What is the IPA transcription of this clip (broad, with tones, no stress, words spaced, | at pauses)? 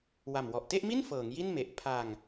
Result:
wa˨˩mwɔ˨˩ʔ te˥˩ʔmi˥˩n fɤː˩˦ŋ ji˥˩nme˨˩ʔ pʰa˧ŋ